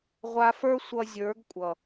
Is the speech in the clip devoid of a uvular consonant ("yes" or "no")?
no